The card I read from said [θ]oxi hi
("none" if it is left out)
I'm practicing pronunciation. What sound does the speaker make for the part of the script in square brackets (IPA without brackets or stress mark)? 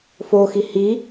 f